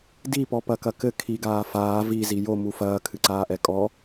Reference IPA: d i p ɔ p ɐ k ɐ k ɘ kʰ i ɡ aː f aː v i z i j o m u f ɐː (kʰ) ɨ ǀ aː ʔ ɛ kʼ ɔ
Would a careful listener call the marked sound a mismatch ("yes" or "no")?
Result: no